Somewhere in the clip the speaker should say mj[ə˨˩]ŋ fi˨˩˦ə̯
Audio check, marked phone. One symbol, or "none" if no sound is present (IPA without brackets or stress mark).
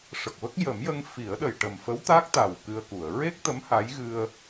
ə˧